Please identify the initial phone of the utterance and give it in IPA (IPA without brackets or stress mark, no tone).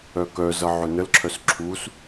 œ